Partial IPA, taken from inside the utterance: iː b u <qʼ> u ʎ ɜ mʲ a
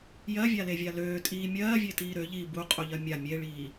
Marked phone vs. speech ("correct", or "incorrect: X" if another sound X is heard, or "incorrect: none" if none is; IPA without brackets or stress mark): correct